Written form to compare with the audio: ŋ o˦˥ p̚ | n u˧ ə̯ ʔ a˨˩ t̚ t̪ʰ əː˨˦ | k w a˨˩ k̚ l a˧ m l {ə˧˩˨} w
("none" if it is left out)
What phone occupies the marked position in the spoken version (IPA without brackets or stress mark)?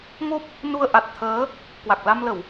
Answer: ə˧˩˨